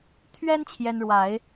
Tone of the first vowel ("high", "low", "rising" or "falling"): high